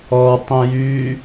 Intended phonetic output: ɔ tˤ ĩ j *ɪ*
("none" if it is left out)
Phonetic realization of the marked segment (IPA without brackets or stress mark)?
y